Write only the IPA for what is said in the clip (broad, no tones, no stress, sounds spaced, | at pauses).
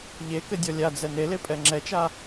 ʎ e k ɘ dʲ ɔ lʲ a d͡z ɛ n e l e pʼ ɛ ŋ͡ǁ ɛ t͡ʃ a